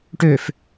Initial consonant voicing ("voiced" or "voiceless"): voiceless